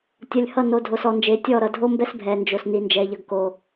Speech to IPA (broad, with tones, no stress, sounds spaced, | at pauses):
tʲ ʌ˨ lʲ h ʌ˦˨ n o˨ dʱ o˨ s ɔ˨ n d͡ʒ e˨ tʲ ɔ˦˨ ɾ ʌ˨ dʱ o˦ m b ɛ˦ s bʱ ɛ˨ n d͡ʒ o˨ s n i˦ n d͡ʒ ɛ˦ ʎ ʌ˦ ɡ k o˦